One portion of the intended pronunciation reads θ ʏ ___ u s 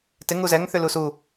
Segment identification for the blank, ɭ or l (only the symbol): l